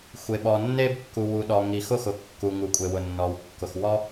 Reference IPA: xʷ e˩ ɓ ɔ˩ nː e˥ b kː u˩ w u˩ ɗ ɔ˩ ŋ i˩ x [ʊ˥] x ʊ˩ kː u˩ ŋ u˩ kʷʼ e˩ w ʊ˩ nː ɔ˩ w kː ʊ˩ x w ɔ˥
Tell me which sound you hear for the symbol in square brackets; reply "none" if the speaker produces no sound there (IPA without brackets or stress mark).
ʊ˥